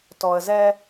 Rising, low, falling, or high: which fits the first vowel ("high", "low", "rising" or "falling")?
low